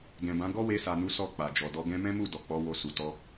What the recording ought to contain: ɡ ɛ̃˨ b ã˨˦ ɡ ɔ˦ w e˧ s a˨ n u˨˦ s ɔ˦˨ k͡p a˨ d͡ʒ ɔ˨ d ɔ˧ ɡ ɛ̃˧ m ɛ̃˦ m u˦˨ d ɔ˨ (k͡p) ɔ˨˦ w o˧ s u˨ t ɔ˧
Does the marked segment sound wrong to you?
no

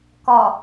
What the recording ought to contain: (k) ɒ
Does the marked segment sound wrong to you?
no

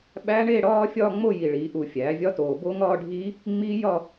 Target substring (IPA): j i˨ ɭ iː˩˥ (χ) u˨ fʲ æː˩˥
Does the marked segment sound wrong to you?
yes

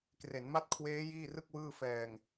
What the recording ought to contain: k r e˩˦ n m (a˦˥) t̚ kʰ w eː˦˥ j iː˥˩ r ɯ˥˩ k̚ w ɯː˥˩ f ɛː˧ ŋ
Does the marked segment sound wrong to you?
no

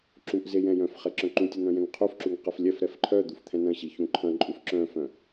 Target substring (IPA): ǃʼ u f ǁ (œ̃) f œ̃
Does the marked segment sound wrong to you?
no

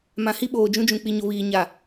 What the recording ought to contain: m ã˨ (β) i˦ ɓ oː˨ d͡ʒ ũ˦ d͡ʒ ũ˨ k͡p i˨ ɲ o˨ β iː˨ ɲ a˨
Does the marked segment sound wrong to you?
yes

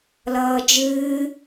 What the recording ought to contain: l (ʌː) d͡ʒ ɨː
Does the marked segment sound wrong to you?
no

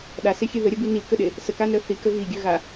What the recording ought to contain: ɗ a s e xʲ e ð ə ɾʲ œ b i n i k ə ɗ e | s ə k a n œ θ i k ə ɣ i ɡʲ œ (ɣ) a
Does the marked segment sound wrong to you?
no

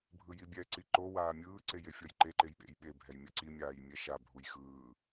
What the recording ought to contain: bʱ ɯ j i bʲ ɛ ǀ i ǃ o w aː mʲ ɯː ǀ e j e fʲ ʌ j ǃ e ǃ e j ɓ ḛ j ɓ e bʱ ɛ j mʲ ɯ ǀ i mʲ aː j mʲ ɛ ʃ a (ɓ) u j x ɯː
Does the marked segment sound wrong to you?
yes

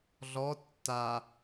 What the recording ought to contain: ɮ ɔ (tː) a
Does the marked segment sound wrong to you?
no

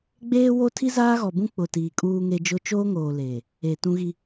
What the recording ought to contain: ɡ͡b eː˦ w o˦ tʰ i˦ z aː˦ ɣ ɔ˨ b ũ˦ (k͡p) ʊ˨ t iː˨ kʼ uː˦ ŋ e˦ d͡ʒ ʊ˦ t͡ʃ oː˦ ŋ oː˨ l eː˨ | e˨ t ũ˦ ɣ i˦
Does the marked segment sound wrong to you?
no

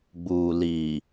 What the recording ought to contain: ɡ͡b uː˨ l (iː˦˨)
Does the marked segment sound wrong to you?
yes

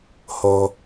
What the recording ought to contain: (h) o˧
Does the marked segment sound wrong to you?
no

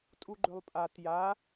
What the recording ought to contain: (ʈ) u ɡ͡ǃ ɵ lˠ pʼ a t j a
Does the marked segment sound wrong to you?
yes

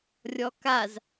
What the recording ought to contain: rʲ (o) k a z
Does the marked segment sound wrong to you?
yes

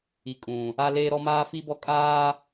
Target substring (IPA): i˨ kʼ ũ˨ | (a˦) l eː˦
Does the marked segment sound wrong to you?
no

